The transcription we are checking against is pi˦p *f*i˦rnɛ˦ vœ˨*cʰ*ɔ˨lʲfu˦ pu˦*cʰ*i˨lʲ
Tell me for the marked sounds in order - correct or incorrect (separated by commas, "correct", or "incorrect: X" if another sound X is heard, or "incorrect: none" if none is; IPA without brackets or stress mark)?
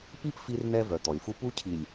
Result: correct, incorrect: t̪, correct